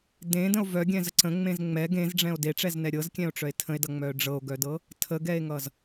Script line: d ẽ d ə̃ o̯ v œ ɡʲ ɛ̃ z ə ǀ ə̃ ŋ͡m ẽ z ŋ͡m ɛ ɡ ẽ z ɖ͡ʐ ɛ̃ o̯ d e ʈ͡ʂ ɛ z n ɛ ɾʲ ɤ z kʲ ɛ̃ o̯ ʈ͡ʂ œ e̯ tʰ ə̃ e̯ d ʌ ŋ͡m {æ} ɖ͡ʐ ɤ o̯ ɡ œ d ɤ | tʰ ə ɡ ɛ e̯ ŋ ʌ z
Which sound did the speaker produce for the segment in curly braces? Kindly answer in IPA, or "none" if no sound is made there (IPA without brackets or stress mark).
œ